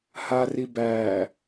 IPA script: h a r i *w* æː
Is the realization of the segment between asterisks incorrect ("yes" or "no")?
yes